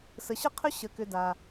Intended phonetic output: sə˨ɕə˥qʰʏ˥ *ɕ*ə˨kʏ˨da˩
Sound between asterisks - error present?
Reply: no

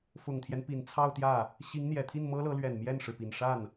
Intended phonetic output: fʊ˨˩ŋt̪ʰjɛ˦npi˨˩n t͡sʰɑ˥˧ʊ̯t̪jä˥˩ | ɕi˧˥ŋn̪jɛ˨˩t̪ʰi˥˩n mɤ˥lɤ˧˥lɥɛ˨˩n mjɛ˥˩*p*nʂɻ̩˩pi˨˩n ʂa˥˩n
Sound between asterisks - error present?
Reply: yes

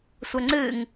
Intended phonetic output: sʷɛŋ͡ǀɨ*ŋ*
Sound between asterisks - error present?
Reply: no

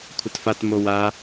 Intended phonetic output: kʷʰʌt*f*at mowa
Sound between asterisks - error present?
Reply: no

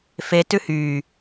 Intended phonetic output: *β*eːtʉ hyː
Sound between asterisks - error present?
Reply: yes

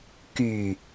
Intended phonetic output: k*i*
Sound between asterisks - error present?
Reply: yes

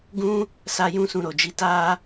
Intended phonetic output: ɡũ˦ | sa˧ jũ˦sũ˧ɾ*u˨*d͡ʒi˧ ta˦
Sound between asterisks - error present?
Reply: yes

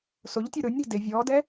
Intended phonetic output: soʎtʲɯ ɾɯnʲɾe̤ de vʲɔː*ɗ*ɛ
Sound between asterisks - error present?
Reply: yes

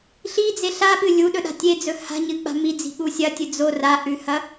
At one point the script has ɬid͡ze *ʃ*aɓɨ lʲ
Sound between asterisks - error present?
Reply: yes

